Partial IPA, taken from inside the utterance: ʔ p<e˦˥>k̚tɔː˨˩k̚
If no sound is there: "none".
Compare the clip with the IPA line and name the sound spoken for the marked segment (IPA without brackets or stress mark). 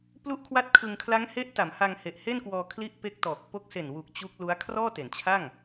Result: e˦˥